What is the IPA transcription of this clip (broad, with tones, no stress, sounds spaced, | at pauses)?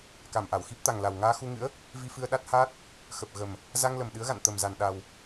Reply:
k a˧˩ m ʔ a˧˩ w x i˦˥ p̚ t̪ a˨˩ ŋ l a˨˩ w ŋ aː˧ x u˧ ŋ ɨ̰˧˥ ə̯ | v i˧ f ɨ˧ ə̯ ɗ a˦˥ t̚ h aː˦˥ t̚ | x ə˨˩ p̚ ɣ ə˨˩ m | z a˧ ŋ l ə˨˩ m ɗ ɨ˨˦ ə̯ ɣ a̰˧˨ n t̪ ə˨˩ m z a˨˩ n ɗ a˨˩ w